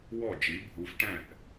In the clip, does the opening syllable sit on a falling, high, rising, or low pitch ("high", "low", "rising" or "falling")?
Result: falling